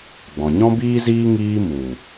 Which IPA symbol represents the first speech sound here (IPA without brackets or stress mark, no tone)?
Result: ɡ͡b